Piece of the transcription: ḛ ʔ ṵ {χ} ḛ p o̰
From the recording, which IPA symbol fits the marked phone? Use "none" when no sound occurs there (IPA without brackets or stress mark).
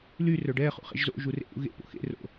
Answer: ɣ